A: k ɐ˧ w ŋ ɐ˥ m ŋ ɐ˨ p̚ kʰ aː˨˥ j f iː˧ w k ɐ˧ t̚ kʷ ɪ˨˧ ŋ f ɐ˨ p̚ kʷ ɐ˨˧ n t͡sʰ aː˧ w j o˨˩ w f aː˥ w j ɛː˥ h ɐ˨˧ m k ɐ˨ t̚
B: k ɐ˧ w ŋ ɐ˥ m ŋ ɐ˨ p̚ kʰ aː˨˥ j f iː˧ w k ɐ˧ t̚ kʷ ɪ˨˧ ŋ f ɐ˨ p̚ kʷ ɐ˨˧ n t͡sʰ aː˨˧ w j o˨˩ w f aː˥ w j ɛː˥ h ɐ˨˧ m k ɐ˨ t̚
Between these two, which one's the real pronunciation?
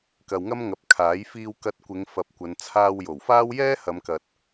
A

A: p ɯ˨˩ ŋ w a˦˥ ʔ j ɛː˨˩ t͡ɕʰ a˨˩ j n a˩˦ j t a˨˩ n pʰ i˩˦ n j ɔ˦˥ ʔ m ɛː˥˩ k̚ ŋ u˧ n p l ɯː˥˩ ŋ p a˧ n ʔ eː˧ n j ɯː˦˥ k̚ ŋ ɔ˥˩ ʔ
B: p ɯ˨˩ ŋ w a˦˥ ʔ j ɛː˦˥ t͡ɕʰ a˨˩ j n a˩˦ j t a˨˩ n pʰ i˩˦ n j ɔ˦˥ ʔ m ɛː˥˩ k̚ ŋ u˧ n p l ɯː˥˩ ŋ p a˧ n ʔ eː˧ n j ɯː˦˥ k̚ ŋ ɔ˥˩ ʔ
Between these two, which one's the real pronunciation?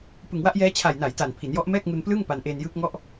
B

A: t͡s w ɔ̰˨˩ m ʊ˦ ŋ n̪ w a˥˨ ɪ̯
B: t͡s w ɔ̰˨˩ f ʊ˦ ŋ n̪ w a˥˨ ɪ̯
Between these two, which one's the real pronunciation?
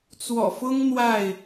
B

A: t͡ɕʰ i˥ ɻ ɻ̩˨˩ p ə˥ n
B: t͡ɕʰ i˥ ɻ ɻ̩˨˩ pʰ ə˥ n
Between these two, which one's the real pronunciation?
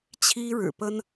A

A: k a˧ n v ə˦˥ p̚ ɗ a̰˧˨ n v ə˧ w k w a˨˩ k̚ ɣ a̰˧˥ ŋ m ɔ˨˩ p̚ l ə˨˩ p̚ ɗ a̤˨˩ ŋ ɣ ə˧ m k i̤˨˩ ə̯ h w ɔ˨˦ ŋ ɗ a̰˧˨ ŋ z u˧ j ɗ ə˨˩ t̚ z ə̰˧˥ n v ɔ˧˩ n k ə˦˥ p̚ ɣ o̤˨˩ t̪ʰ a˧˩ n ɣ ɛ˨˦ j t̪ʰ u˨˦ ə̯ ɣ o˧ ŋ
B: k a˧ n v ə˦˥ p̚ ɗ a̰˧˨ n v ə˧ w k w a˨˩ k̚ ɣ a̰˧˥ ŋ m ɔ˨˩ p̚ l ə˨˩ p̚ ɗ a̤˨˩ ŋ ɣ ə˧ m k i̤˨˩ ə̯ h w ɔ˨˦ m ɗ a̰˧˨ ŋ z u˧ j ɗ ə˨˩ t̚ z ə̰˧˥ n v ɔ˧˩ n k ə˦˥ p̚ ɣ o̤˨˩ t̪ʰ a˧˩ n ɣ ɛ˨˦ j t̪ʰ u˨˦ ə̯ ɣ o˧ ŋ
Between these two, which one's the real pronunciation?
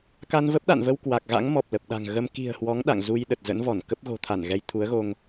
A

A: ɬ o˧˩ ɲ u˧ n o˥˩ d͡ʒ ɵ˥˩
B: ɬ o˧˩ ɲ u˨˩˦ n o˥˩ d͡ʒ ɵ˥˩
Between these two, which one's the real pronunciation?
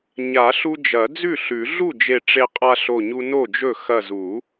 A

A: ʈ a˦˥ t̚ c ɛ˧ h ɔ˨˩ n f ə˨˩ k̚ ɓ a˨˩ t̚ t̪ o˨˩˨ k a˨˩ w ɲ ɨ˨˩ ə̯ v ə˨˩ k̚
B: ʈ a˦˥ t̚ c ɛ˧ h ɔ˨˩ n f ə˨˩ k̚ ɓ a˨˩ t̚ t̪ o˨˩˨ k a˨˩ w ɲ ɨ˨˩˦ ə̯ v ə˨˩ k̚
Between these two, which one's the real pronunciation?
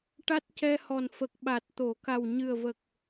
A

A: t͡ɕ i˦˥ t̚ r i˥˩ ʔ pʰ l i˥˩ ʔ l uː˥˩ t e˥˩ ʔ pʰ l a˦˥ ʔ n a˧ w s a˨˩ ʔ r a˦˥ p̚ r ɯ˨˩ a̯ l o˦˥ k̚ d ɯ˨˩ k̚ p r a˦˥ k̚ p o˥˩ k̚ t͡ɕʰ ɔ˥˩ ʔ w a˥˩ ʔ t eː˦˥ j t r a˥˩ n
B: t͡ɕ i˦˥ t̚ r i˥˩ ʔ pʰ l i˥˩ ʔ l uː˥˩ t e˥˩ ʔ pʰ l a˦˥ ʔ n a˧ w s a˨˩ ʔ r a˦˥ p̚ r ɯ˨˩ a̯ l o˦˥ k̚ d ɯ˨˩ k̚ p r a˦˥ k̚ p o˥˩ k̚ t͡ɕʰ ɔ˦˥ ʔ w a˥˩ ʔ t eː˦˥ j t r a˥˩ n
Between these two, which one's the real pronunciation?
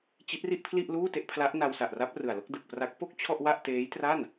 A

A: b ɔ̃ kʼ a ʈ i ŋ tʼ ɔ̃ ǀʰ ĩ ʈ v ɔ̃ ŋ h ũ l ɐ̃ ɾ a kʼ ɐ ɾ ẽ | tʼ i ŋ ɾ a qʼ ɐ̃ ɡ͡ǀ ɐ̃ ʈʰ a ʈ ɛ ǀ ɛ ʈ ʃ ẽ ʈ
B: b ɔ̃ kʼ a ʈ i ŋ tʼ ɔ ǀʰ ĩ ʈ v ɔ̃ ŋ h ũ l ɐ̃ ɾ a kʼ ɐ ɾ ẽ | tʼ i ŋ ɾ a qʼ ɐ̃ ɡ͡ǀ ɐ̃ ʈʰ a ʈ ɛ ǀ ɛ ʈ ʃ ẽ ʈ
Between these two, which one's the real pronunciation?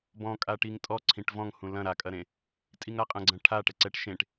B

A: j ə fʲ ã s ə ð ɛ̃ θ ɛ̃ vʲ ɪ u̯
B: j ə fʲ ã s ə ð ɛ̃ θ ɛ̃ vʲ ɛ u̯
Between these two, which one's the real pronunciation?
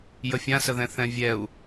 B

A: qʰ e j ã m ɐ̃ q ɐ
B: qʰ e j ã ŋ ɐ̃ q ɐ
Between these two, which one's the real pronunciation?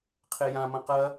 A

